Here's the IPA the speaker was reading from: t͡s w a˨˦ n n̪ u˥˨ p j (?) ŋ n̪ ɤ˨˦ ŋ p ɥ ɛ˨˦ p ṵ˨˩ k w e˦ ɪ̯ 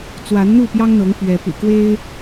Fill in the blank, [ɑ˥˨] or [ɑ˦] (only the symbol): ɑ˦